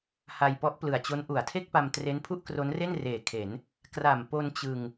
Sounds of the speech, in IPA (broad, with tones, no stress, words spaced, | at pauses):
ha˧jpɔ˦˥ʔplɯ˨˩a̯t͡ɕo˦˥n ʔu˩˦a̯tʰe˥˩k̚pa˧m tre˦˥npʰu˥˩ʔkro˦˥nre˥˩n reː˨˩kʰe˩˦n | kra˨˩mpo˧n t͡ɕɯ˧ŋ